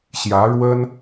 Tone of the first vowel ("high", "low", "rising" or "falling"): rising